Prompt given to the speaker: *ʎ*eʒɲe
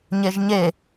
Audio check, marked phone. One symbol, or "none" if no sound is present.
ɲ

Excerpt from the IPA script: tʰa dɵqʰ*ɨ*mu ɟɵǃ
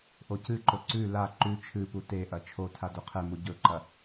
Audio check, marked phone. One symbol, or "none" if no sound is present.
e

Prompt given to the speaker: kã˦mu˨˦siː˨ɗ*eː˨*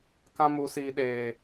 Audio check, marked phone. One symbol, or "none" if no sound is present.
eː˨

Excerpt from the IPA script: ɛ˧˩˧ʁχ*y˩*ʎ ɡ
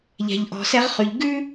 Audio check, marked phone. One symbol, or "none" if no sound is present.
y˩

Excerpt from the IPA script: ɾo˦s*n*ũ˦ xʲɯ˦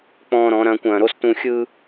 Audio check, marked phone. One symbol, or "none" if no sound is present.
t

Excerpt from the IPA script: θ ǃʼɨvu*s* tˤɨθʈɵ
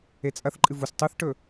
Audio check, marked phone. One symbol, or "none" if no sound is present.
s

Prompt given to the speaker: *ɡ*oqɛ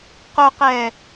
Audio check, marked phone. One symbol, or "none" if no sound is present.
q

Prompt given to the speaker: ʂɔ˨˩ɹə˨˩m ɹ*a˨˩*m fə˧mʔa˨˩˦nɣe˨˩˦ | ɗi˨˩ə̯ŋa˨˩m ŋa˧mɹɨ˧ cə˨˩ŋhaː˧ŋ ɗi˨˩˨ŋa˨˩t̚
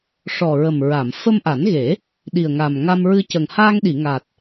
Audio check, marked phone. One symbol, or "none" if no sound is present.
a˨˩˨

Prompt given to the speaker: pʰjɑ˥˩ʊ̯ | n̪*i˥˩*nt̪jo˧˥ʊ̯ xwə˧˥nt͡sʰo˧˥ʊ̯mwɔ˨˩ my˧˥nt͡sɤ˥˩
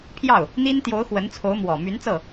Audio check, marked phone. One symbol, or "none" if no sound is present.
i˥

